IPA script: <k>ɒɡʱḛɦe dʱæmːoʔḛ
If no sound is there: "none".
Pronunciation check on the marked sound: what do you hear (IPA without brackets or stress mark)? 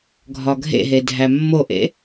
ɡʱ